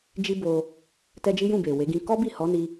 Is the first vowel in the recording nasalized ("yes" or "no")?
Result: no